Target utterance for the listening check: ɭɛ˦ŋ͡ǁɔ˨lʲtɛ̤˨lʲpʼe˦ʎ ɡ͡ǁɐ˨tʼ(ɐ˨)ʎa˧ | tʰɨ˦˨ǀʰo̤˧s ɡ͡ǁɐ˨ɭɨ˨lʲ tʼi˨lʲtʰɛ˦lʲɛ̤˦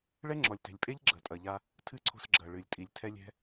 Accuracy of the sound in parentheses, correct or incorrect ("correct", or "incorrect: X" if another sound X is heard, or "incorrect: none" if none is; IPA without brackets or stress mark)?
correct